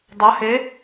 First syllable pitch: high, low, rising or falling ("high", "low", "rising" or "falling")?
rising